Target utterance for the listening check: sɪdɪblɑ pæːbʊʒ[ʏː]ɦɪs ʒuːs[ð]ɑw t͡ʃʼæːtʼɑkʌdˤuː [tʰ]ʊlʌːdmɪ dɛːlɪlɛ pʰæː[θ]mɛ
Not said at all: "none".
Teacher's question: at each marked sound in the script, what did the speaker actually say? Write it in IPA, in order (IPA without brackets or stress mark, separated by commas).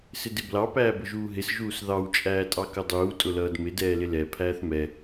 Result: uː, ð, tʼ, θ